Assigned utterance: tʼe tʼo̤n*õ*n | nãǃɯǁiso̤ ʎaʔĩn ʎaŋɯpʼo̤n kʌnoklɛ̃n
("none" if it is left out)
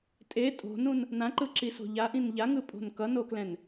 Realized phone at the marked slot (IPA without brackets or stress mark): ũ